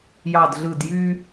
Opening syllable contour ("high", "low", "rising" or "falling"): falling